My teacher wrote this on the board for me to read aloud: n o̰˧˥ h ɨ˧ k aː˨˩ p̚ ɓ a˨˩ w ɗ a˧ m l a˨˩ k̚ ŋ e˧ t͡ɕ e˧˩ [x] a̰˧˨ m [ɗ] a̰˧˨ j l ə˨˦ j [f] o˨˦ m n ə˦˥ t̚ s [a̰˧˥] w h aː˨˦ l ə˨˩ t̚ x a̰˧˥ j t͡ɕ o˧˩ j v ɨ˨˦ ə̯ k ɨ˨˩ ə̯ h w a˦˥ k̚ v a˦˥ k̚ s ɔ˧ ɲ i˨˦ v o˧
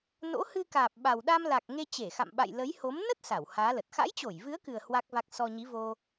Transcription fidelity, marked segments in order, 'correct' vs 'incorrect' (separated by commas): correct, incorrect, incorrect, incorrect